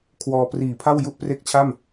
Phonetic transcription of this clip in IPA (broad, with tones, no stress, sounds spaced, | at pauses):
kʰ w ɔː˧ p r iː˨˩ pʰ a˥˩ w j u˥˩ ʔ p r e˥˩ k̚ t͡ɕʰ a˥˩ m